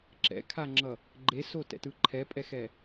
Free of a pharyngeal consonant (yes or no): yes